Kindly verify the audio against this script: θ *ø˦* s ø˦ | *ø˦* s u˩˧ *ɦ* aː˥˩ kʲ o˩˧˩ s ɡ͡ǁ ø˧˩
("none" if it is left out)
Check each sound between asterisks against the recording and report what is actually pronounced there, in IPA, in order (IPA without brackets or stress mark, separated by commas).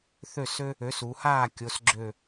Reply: ø˥˩, ø˩˥, h